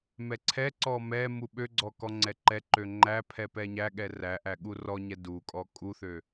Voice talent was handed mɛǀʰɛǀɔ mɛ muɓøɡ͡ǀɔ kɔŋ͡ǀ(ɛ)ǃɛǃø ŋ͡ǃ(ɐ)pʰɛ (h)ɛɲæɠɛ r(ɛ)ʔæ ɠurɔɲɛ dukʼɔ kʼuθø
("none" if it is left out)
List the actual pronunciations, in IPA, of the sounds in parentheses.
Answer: ɛ, æ, p, æ

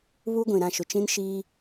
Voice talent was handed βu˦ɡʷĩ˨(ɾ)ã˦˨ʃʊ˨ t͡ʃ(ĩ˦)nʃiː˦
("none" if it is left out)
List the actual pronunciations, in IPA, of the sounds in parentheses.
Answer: ɾ, ĩ˦

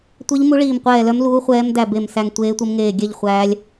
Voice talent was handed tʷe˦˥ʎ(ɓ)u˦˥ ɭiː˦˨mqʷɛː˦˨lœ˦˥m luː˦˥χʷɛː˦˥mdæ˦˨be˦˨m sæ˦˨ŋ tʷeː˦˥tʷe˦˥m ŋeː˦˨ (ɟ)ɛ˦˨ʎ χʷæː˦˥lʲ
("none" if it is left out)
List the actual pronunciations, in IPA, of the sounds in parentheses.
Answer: m, ɡʲ

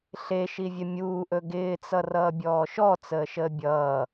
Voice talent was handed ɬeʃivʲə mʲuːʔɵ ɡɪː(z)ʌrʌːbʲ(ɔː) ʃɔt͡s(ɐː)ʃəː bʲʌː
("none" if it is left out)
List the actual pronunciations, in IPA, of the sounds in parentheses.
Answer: t͡s, ɔː, əː

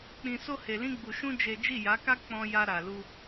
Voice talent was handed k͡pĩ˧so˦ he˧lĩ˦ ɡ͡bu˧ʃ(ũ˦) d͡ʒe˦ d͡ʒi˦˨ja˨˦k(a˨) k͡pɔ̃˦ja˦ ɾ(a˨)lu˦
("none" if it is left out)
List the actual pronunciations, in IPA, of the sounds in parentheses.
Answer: ũ˦, a˦, a˧

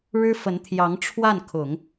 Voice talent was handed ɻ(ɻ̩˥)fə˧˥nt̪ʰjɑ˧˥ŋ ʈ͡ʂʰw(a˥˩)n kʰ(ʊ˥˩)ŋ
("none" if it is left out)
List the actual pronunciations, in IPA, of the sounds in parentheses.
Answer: ɻ̩˥, a˥˩, ʊ˨˩˦

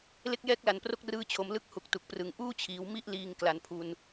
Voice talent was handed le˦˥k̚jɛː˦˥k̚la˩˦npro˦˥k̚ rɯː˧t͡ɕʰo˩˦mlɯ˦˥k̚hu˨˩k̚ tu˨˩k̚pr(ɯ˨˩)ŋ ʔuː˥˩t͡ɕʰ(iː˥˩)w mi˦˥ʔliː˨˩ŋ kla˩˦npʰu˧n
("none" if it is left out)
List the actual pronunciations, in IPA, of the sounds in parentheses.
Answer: ɯ˨˩, iː˩˦

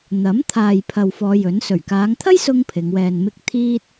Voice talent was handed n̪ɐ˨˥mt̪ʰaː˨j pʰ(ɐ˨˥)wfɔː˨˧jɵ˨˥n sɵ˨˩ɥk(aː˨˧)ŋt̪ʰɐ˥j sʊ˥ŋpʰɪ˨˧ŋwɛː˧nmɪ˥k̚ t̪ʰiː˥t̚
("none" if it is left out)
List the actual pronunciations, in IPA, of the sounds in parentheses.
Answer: ɐ˨, aː˨˧

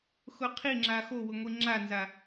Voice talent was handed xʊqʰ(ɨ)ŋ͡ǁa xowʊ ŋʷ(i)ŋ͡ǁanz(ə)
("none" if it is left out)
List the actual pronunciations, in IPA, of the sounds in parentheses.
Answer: i, i, a

